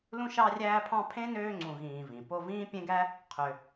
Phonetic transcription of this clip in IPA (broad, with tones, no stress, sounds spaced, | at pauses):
l ũ˦ ʃ ɑ˦ rʲ æː˦ pʰ ɑ̃˦ pʰ ẽ˥ n øː˦ ŋ͡ǀ ũ˨ ɣ ĩː˨ v ĩ˩ p o˦ v ĩː˥ pʲ ẽ˥ ɡ æ˥ | qʰ ø˨